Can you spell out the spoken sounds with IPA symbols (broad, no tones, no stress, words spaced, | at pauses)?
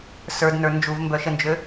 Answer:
sə˞dnə˞ nd͡ʒuvmbœʃənd͡ʒø